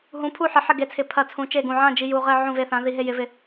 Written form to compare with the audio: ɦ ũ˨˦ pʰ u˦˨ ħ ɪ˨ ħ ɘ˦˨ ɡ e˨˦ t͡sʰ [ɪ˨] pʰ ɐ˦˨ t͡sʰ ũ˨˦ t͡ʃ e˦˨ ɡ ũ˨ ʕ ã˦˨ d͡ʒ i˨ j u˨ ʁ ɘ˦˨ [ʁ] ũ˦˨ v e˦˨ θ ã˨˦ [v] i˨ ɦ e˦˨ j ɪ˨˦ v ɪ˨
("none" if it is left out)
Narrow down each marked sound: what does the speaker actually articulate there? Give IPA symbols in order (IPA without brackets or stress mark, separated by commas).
ɪ˨, ʕ, ð